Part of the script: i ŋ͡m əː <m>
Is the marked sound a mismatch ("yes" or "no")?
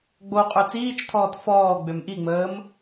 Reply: no